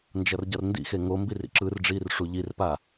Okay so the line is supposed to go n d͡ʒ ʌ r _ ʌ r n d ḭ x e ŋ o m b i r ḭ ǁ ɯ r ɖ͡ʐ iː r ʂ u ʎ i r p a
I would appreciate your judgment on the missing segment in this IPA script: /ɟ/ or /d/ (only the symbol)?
ɟ